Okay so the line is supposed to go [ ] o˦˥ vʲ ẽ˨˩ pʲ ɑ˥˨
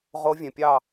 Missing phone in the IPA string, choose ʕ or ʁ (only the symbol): ʁ